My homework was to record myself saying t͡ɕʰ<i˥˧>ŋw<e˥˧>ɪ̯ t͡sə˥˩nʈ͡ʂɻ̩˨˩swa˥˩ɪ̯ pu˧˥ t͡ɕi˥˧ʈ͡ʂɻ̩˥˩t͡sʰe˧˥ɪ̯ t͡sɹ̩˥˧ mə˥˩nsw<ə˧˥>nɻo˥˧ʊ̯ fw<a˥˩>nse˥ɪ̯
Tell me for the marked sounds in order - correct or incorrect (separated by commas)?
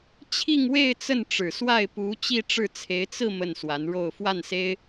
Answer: correct, correct, incorrect, correct